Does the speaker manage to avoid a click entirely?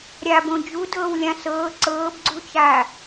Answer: no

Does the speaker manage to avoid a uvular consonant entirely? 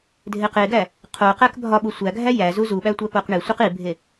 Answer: no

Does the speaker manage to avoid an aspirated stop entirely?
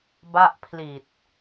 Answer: no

